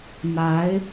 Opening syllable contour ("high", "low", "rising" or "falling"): rising